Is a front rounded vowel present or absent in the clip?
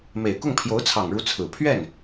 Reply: absent